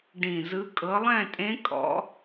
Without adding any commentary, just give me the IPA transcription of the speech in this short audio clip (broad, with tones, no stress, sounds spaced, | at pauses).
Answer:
ɖ ĩ˨˩ z ɯ˨˦ kʼ ɤ˨˦ lˠ ɛ̃˥˨ tʼ ẽ˦˥ kʼ ɔ̰˦˥